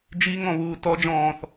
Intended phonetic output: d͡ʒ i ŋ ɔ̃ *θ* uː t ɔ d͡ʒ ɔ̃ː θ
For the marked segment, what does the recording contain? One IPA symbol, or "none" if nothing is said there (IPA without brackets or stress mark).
β